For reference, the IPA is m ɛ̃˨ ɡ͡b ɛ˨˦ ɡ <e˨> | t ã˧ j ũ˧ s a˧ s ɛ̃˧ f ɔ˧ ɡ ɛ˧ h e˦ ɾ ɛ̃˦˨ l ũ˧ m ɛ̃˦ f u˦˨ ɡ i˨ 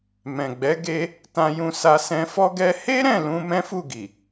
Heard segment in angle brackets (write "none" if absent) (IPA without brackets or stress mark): e˧